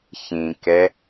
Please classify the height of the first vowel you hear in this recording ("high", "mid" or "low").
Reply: high